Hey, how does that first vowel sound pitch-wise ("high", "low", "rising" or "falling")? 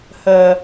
low